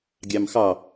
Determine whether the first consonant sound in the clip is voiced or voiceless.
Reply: voiced